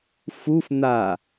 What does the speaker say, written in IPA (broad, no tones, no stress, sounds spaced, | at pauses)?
f u f n̪ a